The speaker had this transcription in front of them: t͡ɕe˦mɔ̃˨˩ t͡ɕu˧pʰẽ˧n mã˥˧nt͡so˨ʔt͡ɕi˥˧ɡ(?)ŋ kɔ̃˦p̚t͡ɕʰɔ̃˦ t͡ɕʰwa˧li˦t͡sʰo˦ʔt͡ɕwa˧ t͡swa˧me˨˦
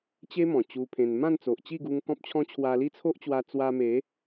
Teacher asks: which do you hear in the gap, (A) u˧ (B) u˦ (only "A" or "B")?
A